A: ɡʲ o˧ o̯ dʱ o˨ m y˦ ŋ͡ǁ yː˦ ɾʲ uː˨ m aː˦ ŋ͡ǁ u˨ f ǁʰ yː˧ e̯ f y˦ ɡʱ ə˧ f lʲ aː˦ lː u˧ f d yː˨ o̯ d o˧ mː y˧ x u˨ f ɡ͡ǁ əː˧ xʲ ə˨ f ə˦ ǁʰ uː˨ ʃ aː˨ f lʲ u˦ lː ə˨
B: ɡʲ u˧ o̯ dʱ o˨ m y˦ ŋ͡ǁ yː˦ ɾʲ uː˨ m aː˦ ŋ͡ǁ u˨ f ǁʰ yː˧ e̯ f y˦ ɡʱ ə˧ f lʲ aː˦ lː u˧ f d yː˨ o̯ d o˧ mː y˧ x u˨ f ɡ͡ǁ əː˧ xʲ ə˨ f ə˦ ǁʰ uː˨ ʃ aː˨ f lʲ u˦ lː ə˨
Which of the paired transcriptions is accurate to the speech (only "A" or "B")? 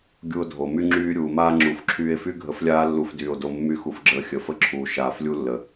B